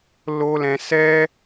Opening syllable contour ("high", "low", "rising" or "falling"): high